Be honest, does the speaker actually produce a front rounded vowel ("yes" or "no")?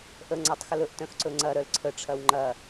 yes